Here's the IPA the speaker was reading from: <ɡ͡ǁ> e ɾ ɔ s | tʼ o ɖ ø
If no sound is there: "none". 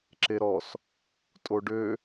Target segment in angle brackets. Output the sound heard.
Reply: ǁ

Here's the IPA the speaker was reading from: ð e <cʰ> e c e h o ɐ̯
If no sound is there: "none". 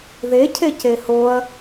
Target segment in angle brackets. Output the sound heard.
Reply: cʰ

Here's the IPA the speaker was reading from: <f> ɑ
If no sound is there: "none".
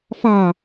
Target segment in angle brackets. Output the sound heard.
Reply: f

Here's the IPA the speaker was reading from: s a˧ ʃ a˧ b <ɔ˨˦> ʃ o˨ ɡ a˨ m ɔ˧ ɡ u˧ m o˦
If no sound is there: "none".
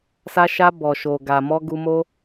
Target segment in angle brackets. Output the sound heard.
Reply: ɔ˨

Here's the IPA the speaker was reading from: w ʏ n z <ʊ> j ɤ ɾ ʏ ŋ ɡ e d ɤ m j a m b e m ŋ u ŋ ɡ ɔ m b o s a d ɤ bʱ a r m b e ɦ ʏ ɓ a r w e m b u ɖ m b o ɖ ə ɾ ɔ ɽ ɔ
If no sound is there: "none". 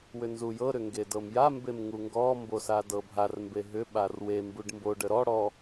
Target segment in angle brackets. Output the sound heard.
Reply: u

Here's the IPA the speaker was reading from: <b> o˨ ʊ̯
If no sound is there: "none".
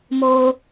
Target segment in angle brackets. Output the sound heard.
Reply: m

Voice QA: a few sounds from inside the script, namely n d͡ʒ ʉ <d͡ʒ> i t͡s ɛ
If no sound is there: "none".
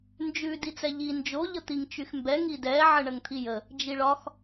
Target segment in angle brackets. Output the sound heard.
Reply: d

